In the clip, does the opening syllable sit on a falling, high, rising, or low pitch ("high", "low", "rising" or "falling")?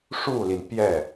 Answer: falling